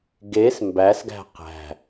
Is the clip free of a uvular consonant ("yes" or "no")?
no